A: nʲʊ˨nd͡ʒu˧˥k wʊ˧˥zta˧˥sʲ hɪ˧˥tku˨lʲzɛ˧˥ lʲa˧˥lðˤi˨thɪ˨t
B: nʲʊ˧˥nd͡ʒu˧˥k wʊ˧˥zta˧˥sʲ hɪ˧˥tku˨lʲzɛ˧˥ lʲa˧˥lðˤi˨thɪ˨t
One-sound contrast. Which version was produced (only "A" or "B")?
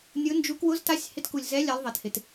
B